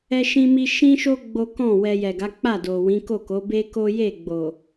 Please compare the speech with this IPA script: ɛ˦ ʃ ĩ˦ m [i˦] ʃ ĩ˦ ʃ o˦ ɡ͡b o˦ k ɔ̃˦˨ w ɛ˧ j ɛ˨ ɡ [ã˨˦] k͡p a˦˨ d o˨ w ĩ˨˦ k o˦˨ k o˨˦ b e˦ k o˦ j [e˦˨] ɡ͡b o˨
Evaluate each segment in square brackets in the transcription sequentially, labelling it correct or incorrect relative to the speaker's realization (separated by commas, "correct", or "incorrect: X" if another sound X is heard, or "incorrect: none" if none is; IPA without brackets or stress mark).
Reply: correct, incorrect: a˨˦, correct